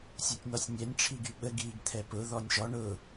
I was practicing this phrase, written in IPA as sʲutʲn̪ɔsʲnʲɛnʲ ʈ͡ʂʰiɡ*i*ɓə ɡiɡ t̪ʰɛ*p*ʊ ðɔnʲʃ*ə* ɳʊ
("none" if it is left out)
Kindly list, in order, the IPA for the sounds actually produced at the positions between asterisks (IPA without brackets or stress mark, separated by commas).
y, p, ɔ